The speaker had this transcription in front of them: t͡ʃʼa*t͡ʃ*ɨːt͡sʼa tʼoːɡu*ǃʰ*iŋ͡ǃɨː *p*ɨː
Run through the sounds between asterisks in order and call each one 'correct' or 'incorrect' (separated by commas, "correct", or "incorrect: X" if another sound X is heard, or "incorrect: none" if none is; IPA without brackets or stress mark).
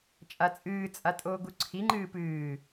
incorrect: t͡sʼ, incorrect: ǀʰ, correct